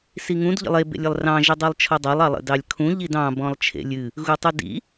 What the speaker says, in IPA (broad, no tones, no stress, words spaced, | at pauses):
siŋũd ʎə̰lˠe bḛlʲəlˠrɑ̃ ʒidˤilˠt͡ʃʰɔdˤɑlˠ ɑlˠə̰dɑlʲkʰũ ʎidɑ̃ bɔ̃lˠt͡ʃʰḛlʲɨ | ɣutˤudḭ